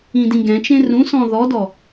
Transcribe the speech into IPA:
ĩdĩɡɛ̃t͡ʃẽ rũsɔ̃ ðɔdɔ

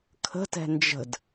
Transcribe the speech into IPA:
kʰə̤tɛ̤ nd͡ʒə̤d

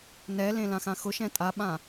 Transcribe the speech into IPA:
nɛlẽ lãxãxʊʃɛ̃ tʼaɓã

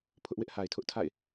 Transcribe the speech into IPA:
pʰʊ˦ʔwɪ˦ʔha˨ɪ̯tʰʊ˦ʔ tʰa̰˦˨ɪ̯

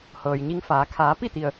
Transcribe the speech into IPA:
hɤː˩jɲi˧ŋfaː˩˧ kʰaː˩˧pi˥˨t̪i˩ə̯

